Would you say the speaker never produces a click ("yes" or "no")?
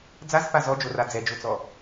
yes